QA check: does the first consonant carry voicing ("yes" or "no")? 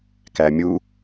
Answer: no